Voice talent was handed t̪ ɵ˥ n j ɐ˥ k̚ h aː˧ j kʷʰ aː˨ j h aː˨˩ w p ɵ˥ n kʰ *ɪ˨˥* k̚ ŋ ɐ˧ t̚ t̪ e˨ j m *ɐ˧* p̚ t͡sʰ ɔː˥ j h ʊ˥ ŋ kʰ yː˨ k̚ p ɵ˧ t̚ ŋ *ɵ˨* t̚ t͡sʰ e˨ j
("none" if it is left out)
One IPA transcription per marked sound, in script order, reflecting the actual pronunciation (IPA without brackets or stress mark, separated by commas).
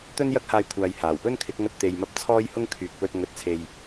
ɪ˨˥, ɐ˧, ɵ˨